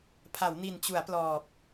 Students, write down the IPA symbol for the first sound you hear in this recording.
pʰ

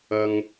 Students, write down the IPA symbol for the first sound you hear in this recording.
ɐ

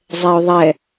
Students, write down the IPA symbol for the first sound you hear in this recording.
zˤ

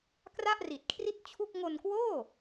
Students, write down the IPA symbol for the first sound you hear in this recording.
k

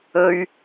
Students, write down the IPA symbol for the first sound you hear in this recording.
ɵ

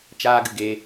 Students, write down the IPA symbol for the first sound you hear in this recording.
t͡ʃ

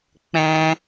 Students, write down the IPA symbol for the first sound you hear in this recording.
k͡p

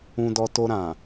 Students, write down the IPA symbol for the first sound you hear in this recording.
ũ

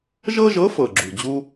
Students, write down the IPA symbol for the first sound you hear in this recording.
ʒ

